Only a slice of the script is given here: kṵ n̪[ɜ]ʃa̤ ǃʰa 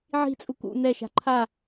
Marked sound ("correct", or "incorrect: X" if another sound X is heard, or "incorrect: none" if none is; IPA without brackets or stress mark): incorrect: ɛ